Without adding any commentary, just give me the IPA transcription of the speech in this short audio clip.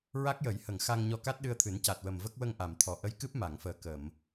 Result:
ɹ a˦˥ k̚ j ə˨˩˦ j h ə˨˩˨ ŋ x a˧ ŋ ɲ ɔ˧ k a˦˥ t̚ ɗ ɨ˧ ə̯ t̪ʰ ɨ˨˩˦ n c a˨˩ t̚ w ə˨˩ m v ə˦˥ k̚ w ə˧ ŋ ʔ a˨˩˨ m t̪ʰ ɔ˨˩ ʔ ə˧˥ j k ɨ˦˥ p̚ m a˨˩˨ ŋ f əː˨˩ k ə˨˩˨ m

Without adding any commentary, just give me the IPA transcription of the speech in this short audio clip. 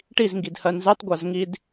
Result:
ʈ i z ŋ ɡ i d h ɜ n z ɛ tˤ ɡʷ a z ŋ i d

